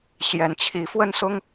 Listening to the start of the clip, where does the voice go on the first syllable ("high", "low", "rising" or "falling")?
rising